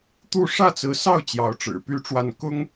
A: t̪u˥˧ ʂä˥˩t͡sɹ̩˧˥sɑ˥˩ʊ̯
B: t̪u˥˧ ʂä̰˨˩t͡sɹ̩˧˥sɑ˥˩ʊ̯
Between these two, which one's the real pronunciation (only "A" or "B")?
A